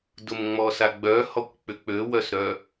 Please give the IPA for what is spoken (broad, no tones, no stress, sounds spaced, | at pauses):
d ʊ m ŋ͡m ɔ s a ɡ͡b œ h ɔ kʷ k͡p ʏ k͡p ø w œ s ɾ œ